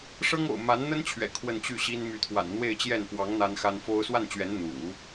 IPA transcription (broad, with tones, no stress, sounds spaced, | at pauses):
ʂ ɤ˥ ŋ o̰˨˩ ʊ̯ m a˧˥ n n̪ ə˥ n t͡ɕʰ ɥ ɛ̰˨˩ kʰ w ə˥˧ n t͡ɕ y˥˩ ɕ i˥ n m y˧˥ t̪ʰ w a̰˨˩ n n̪ w e˥˧ ɪ̯ t͡ɕ j ɛ˥˩ n p w ɑ˧˥ ŋ n̪ a˥ n x a˥ n f o˥ ʊ̯ s w a˥˩ n t͡ɕ ɥ ɛ˧˥ n n̪ ṵ˨˩˦